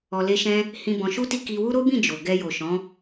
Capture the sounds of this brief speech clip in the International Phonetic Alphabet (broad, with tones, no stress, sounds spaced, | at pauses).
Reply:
ɔ˧ l e˦ ʃ ɛ̃˦ | h ĩ˧ b ɔ̃˧ ʃ u˦ t i˦ k i˧ w u˦ ɾ o˦ b ĩ˦˨ d͡ʒ o˨ ɡ ɛ˧ j o˨ ʃ ɔ̃˨˦